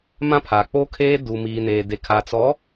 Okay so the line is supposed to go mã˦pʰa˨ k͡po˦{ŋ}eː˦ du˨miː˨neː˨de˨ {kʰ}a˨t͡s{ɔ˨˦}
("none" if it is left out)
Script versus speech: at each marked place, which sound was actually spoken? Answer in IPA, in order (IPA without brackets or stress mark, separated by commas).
kʰ, kʰ, ɔ˨˦